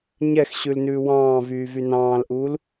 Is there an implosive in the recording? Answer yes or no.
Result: no